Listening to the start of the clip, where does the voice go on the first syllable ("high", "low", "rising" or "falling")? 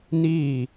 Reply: falling